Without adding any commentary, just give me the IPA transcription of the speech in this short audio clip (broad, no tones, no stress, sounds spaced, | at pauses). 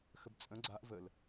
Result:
x ə b t͡sʼ ə̃ ɡ͡ǀ a ʔ v ə l